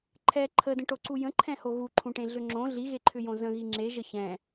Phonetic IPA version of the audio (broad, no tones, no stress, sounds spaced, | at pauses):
ǃʰ ɛ ǃʰ ə d ə̃ ʈ o ǀ u j ə̃ ǃʰ ɛ̃ h o ɣ u ǃʰ ũ ʈ ẽ ɮ ʏ ŋ͡ǁ õ ɮ i ɣ e ǃʰ ʏ j õ z ə̃ ɣ i ŋ͡ǁ e ʒ ə ç ɛ̃